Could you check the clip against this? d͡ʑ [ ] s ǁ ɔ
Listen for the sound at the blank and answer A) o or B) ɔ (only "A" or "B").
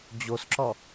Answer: A